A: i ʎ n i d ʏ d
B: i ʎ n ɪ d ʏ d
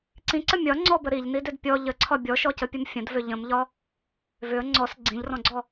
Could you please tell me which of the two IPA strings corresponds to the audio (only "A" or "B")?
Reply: A